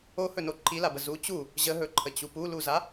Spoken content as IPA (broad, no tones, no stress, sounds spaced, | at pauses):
o h ɵ n o ǃʰ i l a b ə z u t͡ɕ u | ʑ ə ɦ ɵ ǃʰ ə t͡ɕ u p u l u z a